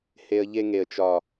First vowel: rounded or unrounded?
unrounded